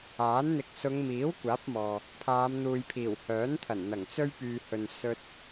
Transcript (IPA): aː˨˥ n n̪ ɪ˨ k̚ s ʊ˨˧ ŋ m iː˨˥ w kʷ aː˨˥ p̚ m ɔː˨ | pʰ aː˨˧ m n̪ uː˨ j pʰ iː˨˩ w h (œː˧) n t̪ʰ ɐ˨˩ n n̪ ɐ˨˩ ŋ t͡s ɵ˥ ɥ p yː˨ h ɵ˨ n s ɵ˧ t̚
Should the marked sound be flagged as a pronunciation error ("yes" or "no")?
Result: yes